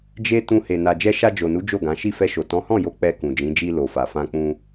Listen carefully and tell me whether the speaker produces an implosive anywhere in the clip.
no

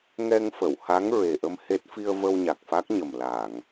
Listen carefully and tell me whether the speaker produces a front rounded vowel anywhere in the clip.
no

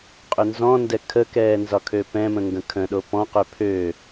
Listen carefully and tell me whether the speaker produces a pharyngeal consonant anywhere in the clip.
no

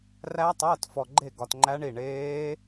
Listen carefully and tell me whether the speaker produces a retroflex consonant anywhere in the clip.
yes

